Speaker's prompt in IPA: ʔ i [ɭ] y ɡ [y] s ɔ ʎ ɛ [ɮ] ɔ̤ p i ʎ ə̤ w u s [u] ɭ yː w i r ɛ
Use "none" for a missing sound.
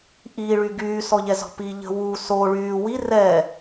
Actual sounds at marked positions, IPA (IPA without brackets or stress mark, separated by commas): ɭ, yː, z, o